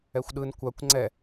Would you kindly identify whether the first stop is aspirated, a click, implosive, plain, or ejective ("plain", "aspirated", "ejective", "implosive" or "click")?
implosive